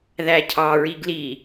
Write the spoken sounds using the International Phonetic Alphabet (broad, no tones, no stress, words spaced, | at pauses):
ðæcʰɑ ɹiɡli